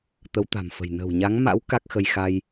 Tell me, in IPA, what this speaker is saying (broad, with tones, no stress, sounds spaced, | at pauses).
t̪ ə˨˦ w t̪ a̤˨˩ m f ə̤˨˩ j n ə̤˨˩ w ɲ a˨˦ ŋ m a̰˧˥ w k a˦˥ k̚ x ə˧ j x a˧ j